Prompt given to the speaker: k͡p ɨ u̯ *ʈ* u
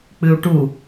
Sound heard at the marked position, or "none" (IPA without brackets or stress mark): ʈ